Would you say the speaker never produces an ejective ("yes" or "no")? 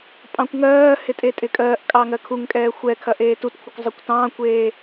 no